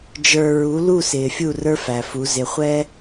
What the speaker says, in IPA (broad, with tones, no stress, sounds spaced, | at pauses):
d͡ʒ ə˞˨ ɹ u˨˦ l u˦˨ s ɪː˨ fʲ u˦˨ r ə˞˦ f æ˨ f u˨˦ z ɪ˨ χʷ ɛ˦